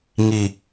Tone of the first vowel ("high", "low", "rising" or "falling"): low